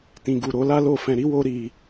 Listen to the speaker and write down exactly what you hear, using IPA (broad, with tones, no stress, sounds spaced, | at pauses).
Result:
t ĩ˨ ɡ u˨ ɾ o˨˦ l a˦ l o˦˨ f ɛ̃˧ ɾ i˧ w o˧ ɾ i˧